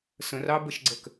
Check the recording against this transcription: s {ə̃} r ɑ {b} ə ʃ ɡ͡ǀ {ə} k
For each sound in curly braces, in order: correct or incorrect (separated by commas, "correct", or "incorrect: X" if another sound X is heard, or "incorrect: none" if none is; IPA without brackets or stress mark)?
correct, correct, correct